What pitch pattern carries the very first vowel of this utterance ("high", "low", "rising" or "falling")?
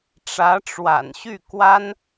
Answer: rising